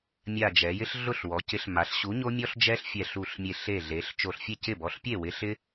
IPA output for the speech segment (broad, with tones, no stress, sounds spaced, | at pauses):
mʲ a˧˩ d͡ʒ ɛ˩˧ j ɪ˦ ɬ ɮ ʊ˥˩ ɬ w ɔ˩˧ c ɪ˨˥ ɬ m a˩˧ ɬ ɕ u˨˥ ɲ o˦ mʲ ɔ˦ ɬ d͡ʒ ɛ˦ ɬ fʲ ɛ˧˩ ɬ u˧˩ ɬ mʲ e˧˩ ɬ e˧˩ ɮ e˩˧ ɬ t͡ʃ o˧˩ ɬ fʲ e˥˩ c ɪ˥˩ b ɔ˨˥ ɬ pʲ e˥˩ w ɪ˨˥ ɬ ɪ˦